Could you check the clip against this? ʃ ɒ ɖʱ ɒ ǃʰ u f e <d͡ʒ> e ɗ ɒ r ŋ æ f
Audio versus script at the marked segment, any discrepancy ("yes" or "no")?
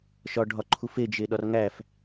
no